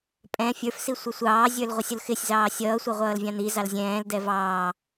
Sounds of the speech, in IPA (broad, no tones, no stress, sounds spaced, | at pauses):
pʼ ɛ̃ fʲ ə˞ f s i sʷ ʌ sʷ ɑː zʲ ə˞ l ʁʷ ʌ sʲ ʊ l x ɪ sʲ z ɑː sʲ ʌː sʷ ʌ ʁʷ ʌː l vʲ ɑ̃ n̪ i z ɑ l zʲ ɛ̃ː l d ɛ v ɑː